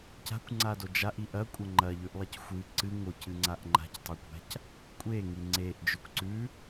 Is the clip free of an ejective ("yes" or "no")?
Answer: no